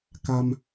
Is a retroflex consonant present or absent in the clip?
absent